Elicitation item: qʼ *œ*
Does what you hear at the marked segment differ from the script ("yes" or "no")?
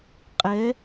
yes